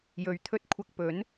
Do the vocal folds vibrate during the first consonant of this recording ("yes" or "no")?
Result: yes